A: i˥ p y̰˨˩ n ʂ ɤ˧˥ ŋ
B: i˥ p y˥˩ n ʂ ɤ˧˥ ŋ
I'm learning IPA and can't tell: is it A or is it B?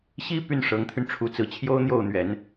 B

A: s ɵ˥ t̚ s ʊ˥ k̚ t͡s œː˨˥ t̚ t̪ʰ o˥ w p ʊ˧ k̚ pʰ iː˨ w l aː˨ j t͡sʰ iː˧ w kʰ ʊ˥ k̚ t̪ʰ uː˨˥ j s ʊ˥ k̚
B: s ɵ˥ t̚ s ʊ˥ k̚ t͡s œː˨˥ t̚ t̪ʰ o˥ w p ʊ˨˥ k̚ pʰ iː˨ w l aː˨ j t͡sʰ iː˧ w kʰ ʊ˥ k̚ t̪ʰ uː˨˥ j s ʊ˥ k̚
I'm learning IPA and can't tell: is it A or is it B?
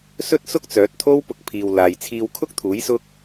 A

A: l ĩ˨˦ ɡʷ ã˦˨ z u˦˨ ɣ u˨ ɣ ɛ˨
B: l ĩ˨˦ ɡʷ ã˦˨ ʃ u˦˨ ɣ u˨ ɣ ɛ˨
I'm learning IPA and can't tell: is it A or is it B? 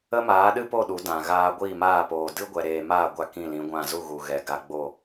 A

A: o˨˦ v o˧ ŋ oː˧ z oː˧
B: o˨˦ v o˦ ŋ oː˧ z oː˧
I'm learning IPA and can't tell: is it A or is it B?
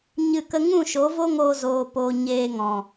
B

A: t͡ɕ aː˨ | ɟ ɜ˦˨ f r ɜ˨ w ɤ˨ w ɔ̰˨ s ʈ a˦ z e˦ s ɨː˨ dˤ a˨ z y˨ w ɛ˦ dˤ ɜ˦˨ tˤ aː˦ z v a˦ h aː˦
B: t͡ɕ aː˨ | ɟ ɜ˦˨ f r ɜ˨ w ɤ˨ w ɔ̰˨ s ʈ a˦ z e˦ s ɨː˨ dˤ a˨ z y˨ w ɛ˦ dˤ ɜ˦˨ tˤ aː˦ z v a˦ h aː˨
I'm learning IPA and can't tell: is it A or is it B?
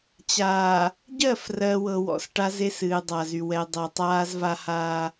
A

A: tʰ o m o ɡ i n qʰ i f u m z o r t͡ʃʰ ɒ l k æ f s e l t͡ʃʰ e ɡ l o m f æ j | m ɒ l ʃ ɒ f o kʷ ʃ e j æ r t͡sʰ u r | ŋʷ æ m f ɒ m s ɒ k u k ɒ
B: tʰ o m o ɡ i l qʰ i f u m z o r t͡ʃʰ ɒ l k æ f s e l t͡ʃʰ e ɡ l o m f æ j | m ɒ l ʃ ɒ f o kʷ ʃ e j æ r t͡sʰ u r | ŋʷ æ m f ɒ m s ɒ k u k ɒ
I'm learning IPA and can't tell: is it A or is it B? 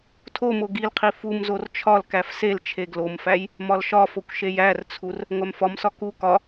B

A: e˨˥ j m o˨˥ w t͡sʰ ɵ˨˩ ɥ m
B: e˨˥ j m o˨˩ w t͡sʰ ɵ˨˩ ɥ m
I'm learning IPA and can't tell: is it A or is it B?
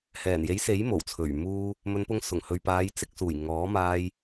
B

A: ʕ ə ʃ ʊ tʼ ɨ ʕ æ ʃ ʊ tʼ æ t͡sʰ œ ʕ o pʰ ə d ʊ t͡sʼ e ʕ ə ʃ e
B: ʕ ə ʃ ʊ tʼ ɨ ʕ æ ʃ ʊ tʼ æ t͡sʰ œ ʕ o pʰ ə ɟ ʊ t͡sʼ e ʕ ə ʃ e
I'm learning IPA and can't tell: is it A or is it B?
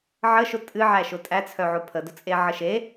A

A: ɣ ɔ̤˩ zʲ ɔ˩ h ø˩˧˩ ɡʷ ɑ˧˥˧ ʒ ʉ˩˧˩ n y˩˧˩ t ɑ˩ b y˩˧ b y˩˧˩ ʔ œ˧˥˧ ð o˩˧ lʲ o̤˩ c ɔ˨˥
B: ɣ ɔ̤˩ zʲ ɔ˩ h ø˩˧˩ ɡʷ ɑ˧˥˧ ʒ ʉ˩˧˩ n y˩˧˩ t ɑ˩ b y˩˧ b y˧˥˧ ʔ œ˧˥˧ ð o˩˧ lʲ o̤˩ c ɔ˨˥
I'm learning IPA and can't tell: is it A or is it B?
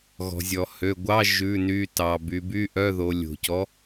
B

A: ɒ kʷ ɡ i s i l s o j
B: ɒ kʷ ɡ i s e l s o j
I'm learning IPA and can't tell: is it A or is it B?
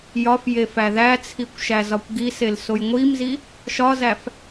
B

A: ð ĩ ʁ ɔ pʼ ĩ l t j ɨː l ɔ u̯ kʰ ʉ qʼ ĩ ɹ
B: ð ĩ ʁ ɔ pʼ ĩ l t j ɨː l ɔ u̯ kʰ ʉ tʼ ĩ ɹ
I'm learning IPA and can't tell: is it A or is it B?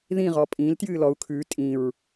B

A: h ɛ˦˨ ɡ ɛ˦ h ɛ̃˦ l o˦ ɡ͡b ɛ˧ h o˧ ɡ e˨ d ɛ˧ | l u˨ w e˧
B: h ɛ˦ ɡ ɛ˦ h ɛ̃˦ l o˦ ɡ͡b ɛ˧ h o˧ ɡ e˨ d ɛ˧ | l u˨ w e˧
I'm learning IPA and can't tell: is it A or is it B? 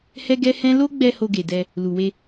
B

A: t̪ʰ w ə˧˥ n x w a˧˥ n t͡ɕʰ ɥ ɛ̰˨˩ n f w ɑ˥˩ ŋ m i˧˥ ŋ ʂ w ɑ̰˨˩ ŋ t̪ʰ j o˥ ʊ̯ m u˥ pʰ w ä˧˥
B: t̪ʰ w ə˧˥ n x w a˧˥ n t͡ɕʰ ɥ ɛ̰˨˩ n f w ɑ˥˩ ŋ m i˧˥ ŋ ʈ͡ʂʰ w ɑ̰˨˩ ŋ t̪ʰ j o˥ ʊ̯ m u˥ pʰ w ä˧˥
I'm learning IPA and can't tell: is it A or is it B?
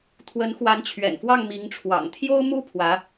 B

